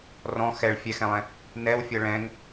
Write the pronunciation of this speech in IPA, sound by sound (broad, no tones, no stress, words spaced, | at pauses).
rɔ̃ xɛɭ fʲɛxɛ̃lˠɛ̃ | nɛwfʲɤ ɭɛ̃ŋ